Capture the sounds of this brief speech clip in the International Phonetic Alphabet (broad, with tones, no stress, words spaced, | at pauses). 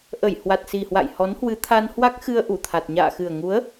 ʔə˧˩j hwa˨˩t̚si˨˩hwa̰˧˨j hɔ˨˦nhwɨ˨˦t̪ʰa˧n hwa˦˥k̚xɨ˧ə̯ ʔu˧˩t̪ʰa˨˩t̚ ɲa̰ː˧˨xɨ˨˩ə̯ŋu˨˦ə̯